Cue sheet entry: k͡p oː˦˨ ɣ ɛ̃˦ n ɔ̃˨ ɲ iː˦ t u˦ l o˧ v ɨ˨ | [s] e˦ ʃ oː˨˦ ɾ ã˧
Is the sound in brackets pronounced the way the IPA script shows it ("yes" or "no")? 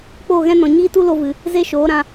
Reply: no